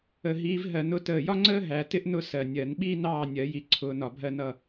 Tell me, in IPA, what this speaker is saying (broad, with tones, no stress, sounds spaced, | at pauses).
ə˨˩ ɦ iː˨˦ v ɦ ɜ˨˩ n ʊ˨˦ t əː˨˩ j ɒ˥ ŋ͡ǀ əː˥ ɦ æ˨˩˦ t ɪ˥ ʔ n ʊ˥˨ s ɜ˨˩ nʲ ɜ˨˩˦ n ɓ iː˥ n ɑː˥˨ nʲ ɜ˨˩˦ j i˨˦ ǀʰ ʊː˨˦ n ɒ˨˩ bʱ ɜ˥˨ n ʌ˥˨